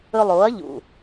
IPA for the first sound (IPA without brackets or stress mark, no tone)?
ɵ